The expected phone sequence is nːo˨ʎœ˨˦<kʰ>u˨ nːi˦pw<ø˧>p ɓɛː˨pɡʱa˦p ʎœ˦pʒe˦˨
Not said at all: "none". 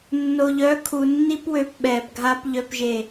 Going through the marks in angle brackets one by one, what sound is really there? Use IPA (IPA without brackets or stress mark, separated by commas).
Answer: kʰ, ø˧